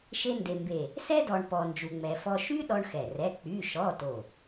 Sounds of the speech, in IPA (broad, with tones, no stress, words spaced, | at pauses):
ʃe˥nde˧mbe˧˩ | sɛ˥dɔ˧ɳ pɔ˧ nd͡ʒu˧ŋ͡mɛ˧fɔ˥ ʃy˥ ɗɔ˥ɳxɛ˧˩rɛ˧˥˧ k͡py˧˥˧ʃɔ˧˥˧to˧˩